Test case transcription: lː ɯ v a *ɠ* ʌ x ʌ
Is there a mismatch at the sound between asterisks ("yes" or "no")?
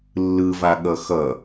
no